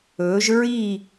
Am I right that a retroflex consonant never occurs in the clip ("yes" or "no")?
yes